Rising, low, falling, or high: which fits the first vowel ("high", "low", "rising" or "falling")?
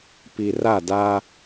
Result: low